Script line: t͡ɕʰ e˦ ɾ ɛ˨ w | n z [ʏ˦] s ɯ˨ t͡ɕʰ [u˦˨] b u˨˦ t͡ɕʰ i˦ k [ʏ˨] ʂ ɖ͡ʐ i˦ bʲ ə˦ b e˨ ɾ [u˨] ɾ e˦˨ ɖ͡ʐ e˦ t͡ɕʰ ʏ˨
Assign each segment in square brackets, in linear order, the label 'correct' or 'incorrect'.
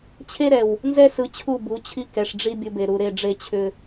incorrect: ɛ˦, correct, incorrect: ɛ˨, correct

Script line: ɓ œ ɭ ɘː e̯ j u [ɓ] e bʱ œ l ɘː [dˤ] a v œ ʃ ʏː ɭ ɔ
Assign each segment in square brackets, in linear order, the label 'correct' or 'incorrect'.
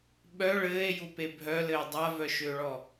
incorrect: p, correct

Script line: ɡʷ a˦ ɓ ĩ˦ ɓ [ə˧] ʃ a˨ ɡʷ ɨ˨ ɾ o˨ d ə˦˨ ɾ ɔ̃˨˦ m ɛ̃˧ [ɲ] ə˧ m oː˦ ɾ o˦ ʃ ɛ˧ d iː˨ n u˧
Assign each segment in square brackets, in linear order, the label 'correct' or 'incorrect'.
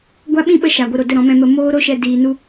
correct, incorrect: m

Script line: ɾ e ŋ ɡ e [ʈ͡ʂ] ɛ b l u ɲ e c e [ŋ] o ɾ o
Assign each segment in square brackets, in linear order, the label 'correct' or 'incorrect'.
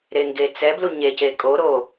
incorrect: t͡s, incorrect: kʼ

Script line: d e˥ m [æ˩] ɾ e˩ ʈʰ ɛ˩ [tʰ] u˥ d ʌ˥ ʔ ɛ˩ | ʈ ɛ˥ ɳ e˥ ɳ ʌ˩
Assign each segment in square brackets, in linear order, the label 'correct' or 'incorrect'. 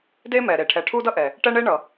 incorrect: ɛ˩, incorrect: ʈʰ

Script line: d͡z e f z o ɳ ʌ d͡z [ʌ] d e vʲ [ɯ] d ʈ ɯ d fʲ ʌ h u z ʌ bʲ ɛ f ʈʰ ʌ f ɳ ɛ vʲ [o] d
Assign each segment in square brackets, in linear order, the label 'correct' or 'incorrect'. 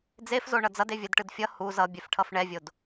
correct, correct, correct

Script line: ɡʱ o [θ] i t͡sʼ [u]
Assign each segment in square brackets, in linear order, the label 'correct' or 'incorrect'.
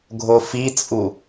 incorrect: f, correct

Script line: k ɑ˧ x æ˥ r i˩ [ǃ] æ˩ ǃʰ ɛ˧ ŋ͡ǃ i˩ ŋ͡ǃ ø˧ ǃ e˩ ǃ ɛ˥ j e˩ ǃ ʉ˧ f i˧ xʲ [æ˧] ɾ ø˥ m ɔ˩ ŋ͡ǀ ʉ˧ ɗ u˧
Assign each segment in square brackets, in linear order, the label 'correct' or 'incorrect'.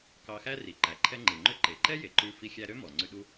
correct, correct

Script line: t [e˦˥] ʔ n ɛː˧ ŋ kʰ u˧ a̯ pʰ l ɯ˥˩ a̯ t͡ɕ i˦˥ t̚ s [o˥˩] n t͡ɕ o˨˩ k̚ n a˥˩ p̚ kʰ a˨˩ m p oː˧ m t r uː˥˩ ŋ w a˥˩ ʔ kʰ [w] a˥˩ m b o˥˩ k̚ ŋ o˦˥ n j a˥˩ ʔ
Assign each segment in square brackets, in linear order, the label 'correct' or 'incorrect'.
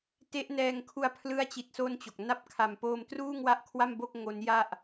correct, correct, correct

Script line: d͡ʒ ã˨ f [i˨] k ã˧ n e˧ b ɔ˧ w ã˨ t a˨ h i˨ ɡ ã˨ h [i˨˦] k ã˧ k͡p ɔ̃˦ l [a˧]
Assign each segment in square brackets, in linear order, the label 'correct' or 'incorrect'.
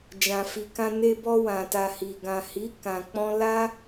correct, correct, incorrect: a˦

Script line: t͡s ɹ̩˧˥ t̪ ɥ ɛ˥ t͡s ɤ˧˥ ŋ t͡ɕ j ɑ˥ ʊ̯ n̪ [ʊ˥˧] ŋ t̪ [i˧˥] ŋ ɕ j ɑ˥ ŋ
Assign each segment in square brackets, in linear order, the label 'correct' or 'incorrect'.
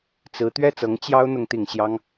correct, incorrect: i˥˩

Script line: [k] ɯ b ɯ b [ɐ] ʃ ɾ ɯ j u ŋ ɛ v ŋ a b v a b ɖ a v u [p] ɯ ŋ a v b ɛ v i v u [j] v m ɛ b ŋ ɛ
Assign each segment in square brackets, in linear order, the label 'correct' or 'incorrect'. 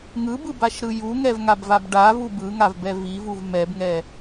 incorrect: ŋ, incorrect: a, incorrect: b, incorrect: none

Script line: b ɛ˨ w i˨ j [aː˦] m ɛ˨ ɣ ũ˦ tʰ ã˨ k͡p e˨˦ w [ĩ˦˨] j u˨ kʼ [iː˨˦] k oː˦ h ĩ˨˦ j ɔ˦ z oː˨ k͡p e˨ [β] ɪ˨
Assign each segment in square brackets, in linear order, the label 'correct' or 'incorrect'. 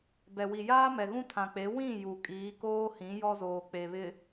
correct, correct, correct, correct

